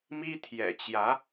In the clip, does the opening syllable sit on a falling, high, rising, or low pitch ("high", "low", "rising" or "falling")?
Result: high